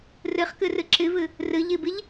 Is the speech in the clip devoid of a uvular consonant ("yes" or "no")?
no